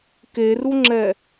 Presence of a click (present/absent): present